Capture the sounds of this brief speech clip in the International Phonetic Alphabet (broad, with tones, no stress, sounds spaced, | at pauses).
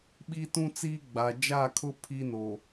ɓ i˦ t ũ˦ t͡s iː˦ ɡ͡b a˨ d͡ʒ a˦˨ kʰ ʊ˦ pʰ i˦ n o˨